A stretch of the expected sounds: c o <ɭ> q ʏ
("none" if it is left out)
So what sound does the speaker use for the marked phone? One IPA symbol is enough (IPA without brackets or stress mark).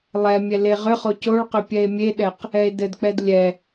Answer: ɭ